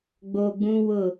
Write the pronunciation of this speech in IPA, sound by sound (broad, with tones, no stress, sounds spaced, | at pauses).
ɡ͡b o˨ ɡ͡b ũ˦ w ʊ˦˨